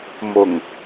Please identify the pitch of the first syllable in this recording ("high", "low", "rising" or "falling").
low